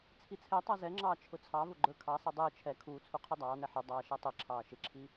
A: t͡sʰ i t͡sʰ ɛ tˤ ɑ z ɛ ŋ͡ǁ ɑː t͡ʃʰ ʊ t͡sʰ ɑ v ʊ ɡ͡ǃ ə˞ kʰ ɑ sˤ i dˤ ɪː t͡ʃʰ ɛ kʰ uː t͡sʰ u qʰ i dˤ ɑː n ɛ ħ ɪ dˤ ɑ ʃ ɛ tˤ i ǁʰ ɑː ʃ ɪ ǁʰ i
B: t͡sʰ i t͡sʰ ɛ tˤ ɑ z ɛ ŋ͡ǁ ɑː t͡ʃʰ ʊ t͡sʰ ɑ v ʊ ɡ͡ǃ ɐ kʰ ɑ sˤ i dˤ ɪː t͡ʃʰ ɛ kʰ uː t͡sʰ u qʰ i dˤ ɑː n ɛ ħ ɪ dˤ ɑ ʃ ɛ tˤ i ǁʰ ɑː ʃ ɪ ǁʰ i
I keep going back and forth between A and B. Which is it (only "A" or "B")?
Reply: A